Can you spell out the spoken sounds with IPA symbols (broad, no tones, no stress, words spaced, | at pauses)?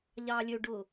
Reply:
ʎɑːlʲøɖʊː